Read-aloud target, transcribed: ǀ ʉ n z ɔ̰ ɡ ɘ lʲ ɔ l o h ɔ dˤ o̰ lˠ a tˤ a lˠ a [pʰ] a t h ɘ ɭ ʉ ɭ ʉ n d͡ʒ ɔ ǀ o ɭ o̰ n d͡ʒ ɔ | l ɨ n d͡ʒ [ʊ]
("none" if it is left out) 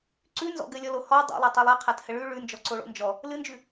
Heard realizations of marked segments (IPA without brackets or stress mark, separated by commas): qʰ, ʉ